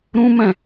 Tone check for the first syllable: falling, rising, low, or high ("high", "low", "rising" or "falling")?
high